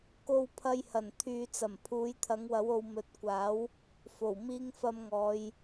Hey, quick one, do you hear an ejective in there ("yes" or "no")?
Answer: no